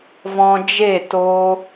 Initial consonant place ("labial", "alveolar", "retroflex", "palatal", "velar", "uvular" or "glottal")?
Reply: labial